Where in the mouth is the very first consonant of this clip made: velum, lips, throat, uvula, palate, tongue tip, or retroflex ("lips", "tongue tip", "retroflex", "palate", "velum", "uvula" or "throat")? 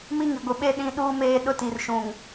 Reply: lips